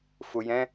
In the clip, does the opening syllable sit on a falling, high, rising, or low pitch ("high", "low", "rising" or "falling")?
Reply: low